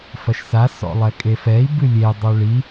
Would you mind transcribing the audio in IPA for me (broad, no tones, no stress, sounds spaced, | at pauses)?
f ɐ ʃ s a s ɔ̰ lˠ ɛ kʼ e f ɛ i̯ b ɨ lʲ e dˤ o ɭ i